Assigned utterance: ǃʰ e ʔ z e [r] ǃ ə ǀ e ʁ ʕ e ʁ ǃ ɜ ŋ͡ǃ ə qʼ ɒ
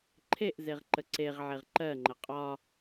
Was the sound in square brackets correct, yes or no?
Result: no